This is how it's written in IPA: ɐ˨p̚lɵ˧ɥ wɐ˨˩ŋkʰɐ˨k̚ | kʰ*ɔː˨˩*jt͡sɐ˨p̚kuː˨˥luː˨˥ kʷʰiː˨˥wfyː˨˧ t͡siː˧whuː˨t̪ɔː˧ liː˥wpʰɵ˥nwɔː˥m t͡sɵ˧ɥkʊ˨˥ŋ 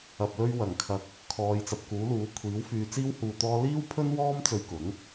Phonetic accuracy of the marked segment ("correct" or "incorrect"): incorrect